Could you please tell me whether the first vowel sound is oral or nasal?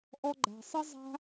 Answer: oral